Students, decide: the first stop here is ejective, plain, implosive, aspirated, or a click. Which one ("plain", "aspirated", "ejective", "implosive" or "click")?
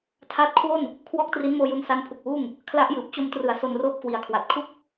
aspirated